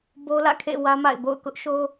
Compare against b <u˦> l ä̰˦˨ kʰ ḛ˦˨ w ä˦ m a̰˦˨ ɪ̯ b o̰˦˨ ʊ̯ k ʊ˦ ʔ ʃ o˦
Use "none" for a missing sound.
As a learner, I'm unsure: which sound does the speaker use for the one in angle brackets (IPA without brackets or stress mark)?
o˦